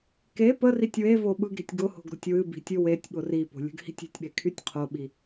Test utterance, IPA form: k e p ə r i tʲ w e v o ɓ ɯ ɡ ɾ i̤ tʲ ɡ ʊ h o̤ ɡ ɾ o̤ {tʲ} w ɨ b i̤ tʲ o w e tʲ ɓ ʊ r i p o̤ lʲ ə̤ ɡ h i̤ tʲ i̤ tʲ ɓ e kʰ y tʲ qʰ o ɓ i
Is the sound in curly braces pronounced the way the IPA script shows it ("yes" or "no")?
yes